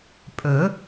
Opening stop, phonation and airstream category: ejective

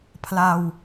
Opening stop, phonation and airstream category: aspirated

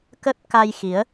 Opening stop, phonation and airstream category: plain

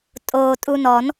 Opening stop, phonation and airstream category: ejective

